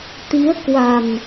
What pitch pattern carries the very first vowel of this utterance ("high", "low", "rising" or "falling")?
rising